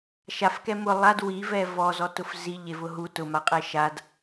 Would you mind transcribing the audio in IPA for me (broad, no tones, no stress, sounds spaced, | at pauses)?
ʃ a f k ɛ m ʊ lˠ a d w i v ɛ v ɔ z ɔ t ʊ f z i ʎ e v ʊ ɦ u t ʊ m a qʼ ɛ ʃ a d